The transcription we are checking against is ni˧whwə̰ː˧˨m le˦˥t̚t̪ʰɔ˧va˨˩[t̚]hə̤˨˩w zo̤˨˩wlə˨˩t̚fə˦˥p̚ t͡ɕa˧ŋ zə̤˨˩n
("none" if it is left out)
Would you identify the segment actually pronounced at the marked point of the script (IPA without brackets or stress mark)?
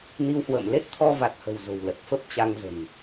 t̚